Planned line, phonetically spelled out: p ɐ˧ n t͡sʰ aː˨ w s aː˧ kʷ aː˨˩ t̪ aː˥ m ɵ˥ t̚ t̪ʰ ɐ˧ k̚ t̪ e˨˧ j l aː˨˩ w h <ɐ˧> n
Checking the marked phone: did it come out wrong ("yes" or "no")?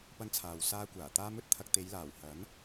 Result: yes